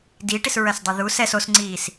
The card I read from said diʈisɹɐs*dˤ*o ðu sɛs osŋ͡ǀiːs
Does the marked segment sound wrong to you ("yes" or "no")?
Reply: no